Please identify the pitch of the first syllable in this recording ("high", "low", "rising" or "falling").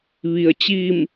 low